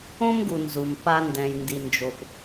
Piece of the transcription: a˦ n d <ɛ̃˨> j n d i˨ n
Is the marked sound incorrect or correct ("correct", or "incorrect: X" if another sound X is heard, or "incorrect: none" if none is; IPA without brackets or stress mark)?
correct